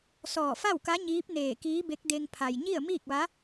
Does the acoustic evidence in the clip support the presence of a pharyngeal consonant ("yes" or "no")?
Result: no